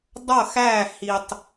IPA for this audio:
dˤ ʌ˦˨ x æ˦˨ h i˨ tˤ

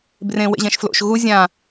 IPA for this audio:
b r ẽ w ḛ ʑ ɛ̃ ʃ f l o̰ ʃ ɣ u zʲ ã

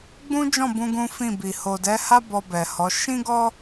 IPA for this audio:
ɡ͡b ũ˦ d͡ʒ ɔ̃˦˨ b ũ˧ ɡ ũ˦ f ĩ˦˨ b i˨ h o˨ d ɛ˨˦ h a˦ b ɔ˧ b ɛ˨ h ɔ˨˦ ʃ ĩ˦ ɡ ɔ˦

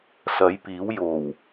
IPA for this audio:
s ɐ˨˥ j p iː˨˥ w j o˨˩ w

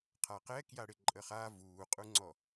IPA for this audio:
qʰ a q ɛ k j a ɽ ɪ ǃʼ ə χ a v uː qʼ u ŋ͡ǀ ɔ

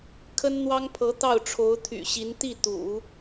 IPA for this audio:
kʰ ə˥ n n̪ w ɑ˥ ŋ pʰ ɤ˧˥ t̪ ɑ˥˩ ʊ̯ ʈ͡ʂʰ o˧˥ ʊ̯ t̪ʰ y̰˨˩ ɕ i˧˥ n t̪ i˥˩ t̪ ṵ˨˩˦

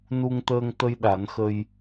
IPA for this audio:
n u˧ ŋ t̪ əː˧ ŋ t̪ ə˧ j ɗ a˨˩˦ n x ə˧ j

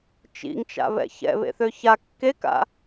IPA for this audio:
t͡ʃ ḭ ŋ t͡ʃ a̰ β ɛ̰ ç ɛ̰ β ḛ θ ø ç a kː e k a̰

